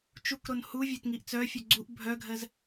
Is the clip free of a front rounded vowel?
no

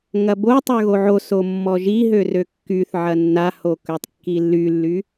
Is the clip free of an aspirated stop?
yes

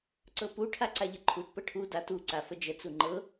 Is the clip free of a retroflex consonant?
no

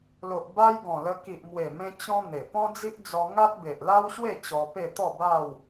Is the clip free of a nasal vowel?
no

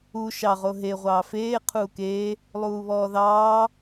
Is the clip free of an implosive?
yes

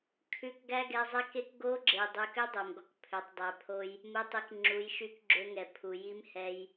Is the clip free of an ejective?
yes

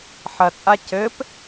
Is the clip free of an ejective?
no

